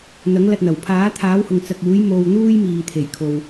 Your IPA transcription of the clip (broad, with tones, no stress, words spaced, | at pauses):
n̪ɐ˨˥ŋlɐ˧t̚n̪ɐ˨˩w pʰaː˨˥t̪ʰaː˨˥whʊ˨ŋ t͡sɐ˨k̚ uː˨˥j mo˧wn̪uː˥j miː˨t̪ʰe˨˩jkʰo˨w